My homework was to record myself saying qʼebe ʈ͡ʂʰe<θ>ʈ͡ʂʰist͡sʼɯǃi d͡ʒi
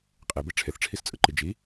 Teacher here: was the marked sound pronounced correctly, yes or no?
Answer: yes